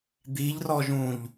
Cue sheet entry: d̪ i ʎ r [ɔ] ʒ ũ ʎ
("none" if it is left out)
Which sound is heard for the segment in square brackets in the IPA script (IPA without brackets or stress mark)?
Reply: ɔ